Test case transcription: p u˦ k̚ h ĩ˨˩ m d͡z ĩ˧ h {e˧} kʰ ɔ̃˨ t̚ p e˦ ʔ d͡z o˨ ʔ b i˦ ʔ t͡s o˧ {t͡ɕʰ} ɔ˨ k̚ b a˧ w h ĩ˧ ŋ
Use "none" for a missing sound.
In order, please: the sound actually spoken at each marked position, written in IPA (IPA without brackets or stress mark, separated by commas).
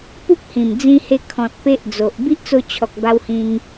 e˧, t͡ɕʰ